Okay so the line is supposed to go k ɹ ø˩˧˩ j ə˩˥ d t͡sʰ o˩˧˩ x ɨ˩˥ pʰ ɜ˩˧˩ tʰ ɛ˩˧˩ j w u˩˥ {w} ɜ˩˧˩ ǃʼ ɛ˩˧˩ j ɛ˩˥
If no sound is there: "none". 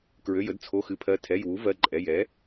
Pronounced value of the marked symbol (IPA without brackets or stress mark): v